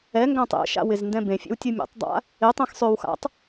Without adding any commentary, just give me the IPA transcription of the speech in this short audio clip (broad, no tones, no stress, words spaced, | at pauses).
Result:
ɛ ŋɡãtˤḛʃa̰ wɪzndɛ̃bẽfʲḛw tʲɯmʲɛ̰tˤdˤa̰ | ɪtˤɛ̃x sˤøwxa̰tˤ